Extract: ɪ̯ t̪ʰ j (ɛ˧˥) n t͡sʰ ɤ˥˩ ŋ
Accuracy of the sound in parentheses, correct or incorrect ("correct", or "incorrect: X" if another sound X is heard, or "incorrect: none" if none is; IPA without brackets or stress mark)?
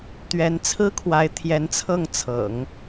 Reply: correct